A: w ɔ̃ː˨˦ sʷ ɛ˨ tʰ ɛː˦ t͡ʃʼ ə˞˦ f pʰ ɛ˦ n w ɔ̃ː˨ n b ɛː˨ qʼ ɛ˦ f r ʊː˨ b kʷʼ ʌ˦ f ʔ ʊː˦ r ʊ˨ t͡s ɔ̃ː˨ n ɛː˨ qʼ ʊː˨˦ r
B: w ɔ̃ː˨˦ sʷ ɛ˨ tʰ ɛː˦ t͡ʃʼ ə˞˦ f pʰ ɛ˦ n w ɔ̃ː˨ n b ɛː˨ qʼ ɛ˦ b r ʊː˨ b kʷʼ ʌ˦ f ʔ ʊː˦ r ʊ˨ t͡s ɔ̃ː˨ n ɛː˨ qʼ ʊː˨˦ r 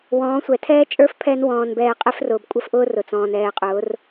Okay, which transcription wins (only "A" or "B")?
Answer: A